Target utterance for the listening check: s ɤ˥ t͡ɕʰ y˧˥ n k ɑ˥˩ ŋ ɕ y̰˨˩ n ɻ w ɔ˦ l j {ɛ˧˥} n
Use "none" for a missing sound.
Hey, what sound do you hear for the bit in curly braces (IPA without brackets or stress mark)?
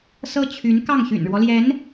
ɛ˧˥